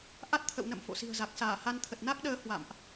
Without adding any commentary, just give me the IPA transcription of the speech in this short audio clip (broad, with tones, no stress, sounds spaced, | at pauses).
ʔ a˦˥ t̚ t̪ʰ ə̰˧˨ w n ə̰˧˨ m f o̰˧˨ s i̤˨˩ ə̯ z a˨˩ k̚ s aː˧˩ h a˧ n t̪ʰ ə˨˩ t̚ n a˦˥ k̚ ɗ əː˨˦ h w a̰˧˨ m ʔ